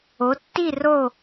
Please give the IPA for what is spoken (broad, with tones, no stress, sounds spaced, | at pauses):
o˨˦ tː i˥˧ r o˥˧